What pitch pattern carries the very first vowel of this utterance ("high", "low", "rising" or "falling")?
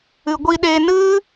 low